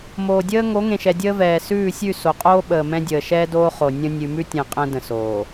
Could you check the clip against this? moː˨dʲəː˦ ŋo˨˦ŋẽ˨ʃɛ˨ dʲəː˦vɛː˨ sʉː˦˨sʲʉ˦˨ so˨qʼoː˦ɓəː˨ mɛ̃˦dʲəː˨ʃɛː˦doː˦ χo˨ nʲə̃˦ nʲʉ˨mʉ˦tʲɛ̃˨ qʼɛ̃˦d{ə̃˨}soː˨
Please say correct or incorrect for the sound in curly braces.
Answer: correct